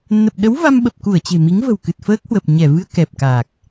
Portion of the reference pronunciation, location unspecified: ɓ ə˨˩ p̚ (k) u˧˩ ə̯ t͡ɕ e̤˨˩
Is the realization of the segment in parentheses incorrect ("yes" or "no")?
no